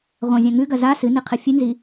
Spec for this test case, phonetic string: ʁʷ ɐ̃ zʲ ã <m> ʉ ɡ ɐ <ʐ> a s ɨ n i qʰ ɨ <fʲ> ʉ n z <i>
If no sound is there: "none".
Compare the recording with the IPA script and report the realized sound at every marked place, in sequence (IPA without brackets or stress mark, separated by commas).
ŋ, z, fʲ, i